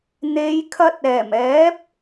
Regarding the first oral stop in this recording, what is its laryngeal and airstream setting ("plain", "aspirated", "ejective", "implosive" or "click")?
aspirated